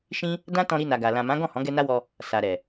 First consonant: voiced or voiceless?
voiceless